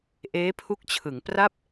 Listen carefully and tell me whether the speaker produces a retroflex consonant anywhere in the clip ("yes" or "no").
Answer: no